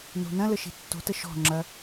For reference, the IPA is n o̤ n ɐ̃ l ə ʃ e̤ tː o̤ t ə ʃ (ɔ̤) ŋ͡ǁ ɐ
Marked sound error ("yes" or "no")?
no